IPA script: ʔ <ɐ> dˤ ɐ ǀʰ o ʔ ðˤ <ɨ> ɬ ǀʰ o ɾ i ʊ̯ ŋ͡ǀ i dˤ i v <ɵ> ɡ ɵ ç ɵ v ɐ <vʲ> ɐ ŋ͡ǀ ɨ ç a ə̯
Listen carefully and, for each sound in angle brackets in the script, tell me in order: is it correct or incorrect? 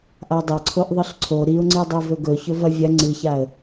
incorrect: a, correct, correct, correct

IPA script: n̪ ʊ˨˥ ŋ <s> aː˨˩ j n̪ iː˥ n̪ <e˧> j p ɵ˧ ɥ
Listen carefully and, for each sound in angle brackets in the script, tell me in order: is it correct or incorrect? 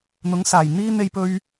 correct, correct

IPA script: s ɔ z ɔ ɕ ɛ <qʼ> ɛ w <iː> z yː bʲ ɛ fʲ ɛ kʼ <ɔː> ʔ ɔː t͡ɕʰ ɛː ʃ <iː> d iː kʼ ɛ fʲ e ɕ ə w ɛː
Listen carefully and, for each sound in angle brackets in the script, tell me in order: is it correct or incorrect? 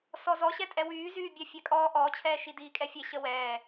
incorrect: tʼ, incorrect: yː, correct, incorrect: i

